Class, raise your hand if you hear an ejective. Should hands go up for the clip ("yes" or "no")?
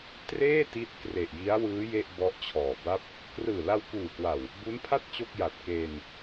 no